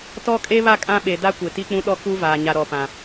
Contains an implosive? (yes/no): yes